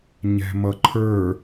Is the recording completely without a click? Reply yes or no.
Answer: no